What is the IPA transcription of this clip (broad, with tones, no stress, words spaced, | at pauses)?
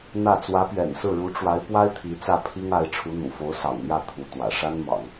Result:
n̪ä˥˩ t͡swä˧˥pɥɛ̰˨˩nsɹ̩˥˩ɻu˧˥ ʈ͡ʂwa˧˥ɪ̯pwa˥ɪ̯ t̪ʰi˧˥t͡sä˥˩pʰi˥ŋa˧˥ɪ̯ ʈ͡ʂʰu˧˥n̪ṵ˨˩fo˧˥ʊ̯ sɑ̰˨˩ŋn̪jä˥˩ t̪ʰu˧˥t̪wä̰˨˩ ʂa˥nmɑ̰˨˩˦ŋ